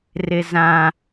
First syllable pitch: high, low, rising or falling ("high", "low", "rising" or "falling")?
high